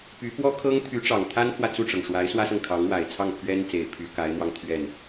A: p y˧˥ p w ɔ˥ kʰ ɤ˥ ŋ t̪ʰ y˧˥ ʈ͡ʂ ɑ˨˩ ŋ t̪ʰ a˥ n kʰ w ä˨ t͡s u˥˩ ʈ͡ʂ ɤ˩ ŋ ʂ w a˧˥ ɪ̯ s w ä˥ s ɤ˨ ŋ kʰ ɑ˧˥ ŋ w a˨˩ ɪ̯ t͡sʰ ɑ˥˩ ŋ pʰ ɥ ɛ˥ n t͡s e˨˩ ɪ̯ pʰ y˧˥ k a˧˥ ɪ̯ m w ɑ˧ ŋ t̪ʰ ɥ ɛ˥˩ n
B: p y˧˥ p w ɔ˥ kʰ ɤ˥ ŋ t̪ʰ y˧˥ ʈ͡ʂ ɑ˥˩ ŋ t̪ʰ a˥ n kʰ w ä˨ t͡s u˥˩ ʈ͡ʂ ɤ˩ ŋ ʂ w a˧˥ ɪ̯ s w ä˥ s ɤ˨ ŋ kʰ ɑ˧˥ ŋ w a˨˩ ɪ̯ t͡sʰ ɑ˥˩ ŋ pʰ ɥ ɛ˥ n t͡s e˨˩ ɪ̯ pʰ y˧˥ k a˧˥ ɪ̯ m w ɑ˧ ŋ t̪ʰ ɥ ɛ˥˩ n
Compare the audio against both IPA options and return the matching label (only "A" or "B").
A